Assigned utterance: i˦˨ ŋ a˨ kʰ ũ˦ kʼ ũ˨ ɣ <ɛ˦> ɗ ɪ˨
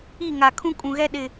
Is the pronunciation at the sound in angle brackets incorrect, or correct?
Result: correct